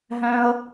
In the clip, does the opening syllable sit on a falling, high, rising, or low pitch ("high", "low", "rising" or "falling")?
high